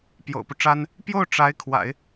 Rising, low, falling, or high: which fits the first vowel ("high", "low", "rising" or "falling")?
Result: low